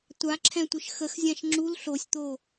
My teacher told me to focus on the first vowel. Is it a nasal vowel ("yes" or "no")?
no